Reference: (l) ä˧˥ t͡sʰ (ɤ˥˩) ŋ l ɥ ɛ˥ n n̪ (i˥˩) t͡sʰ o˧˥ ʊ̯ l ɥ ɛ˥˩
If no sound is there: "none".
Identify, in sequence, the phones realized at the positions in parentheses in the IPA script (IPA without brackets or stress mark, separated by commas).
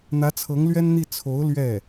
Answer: n̪, ɤ˧˥, i˥˩